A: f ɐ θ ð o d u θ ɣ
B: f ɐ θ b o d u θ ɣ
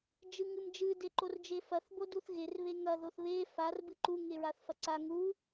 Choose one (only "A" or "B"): B